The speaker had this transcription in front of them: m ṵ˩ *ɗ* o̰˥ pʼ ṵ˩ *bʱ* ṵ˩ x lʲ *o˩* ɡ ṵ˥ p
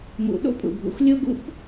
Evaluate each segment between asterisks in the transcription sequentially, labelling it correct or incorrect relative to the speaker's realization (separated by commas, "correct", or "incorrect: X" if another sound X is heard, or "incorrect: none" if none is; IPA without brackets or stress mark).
correct, correct, incorrect: o˥